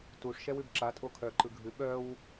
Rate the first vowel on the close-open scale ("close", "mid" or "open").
close